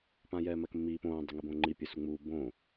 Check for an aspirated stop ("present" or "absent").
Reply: absent